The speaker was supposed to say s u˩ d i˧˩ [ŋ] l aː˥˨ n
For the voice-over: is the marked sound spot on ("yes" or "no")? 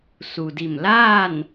no